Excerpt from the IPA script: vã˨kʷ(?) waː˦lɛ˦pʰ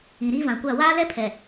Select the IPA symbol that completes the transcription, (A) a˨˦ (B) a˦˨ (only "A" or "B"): B